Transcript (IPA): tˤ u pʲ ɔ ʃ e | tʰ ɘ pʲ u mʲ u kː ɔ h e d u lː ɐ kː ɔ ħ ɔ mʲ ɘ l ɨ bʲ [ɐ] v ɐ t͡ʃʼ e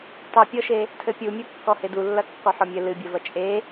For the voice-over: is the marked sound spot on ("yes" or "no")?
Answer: yes